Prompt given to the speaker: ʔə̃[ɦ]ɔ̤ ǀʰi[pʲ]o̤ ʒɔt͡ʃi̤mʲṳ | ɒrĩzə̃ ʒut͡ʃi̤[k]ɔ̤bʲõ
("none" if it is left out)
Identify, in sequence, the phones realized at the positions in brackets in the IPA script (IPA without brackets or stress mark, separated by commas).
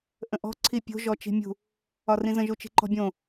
ʔ, pʲ, ǃ